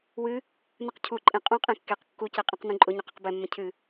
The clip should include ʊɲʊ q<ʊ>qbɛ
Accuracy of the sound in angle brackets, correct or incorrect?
incorrect